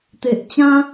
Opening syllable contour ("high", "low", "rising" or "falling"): low